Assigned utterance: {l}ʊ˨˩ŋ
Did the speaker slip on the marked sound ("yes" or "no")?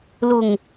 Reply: no